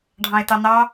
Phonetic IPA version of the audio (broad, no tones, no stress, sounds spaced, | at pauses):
ɖʱ ɑ̃ e̯ t ɑ n ɑ